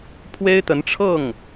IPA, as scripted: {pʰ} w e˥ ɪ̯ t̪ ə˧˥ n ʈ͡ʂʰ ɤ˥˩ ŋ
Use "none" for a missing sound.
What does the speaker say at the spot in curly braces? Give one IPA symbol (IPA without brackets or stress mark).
pʰ